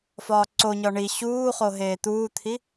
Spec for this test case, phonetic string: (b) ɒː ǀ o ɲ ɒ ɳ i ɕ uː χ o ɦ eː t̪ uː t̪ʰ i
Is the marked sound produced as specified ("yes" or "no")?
no